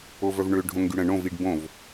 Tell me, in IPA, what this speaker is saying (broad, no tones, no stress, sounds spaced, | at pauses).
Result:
o v œ v ɳ ø ɖʱ õ ŋ ɡ y ɽ ə̃ ɳ õ v i ɖ b õ v